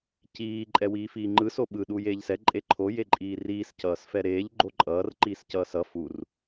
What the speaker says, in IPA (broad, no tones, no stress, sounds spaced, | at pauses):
c iː ǃʼ ɛ w iː f iː ŋ͡ǃ ɯ s o ɓ ɯ ɗ uː j eː ʎ s ɛ ǃʼ e ǃʰ o j e ǃʼ iː r iː s c ʌː s f ɛ ɾ eː ʎ ɡ͡ǃ o ǃʼ ʌː r ǃ iː s c ʌː s ʌ f u r